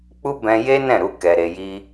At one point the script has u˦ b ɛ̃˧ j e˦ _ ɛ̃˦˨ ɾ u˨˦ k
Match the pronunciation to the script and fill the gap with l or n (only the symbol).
n